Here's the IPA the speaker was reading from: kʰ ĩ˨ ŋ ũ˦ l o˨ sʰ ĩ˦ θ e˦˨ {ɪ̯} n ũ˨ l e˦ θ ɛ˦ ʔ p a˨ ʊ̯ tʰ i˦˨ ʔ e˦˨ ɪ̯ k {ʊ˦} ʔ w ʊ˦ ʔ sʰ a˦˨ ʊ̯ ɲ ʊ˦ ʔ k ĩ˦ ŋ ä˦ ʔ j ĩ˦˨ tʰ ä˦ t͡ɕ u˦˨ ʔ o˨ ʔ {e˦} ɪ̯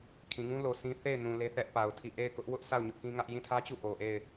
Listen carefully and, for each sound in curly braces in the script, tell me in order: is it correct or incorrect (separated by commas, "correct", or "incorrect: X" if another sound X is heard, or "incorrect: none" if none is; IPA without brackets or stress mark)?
correct, correct, incorrect: e˦˨